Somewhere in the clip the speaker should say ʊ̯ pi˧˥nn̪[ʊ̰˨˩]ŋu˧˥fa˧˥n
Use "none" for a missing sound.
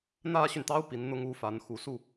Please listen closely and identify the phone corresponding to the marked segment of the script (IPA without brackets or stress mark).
ʊ˥